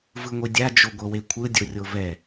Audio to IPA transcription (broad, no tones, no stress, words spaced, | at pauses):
vɯŋʷidʲa d͡ʒoɡʷɤwekʷʰɯ dʲorʲovɛ